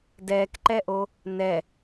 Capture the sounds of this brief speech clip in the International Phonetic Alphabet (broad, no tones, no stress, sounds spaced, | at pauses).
d ɛː k ǃ ɛ ʔ o | n ɛ